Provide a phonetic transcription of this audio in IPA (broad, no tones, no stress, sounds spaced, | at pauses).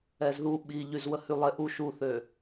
ɛ z ð u ɓ i ʎ y z w ə h y lˠ e ʔ u ʃ u θ ø